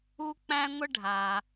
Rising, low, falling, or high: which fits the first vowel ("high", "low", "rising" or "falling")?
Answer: high